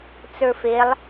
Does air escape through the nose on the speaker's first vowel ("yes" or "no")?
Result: no